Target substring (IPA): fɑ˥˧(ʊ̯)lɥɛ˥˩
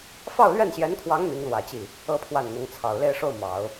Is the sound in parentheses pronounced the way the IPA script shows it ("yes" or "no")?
yes